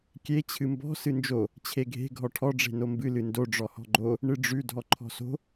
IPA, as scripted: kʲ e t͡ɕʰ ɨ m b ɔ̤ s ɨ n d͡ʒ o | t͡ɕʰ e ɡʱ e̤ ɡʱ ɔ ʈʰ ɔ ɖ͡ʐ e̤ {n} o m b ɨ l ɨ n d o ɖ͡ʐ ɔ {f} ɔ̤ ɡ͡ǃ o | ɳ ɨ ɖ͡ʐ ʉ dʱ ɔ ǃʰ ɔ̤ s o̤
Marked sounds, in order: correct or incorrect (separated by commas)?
correct, incorrect